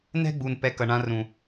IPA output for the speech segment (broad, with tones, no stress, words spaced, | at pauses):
nɛ̤˦ɡ͡bu˨n pɛ˧kʌ˨ɳã˧rũ˨